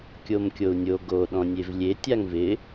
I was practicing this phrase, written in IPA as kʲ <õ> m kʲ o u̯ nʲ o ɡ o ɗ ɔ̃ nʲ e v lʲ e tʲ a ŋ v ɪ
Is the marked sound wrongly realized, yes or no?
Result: yes